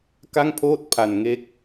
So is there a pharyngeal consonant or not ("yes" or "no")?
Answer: no